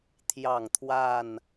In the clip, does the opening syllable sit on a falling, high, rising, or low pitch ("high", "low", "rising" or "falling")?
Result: falling